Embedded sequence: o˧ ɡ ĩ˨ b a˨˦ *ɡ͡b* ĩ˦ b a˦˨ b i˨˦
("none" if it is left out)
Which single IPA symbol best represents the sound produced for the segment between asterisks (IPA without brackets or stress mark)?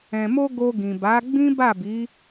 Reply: ɡ͡b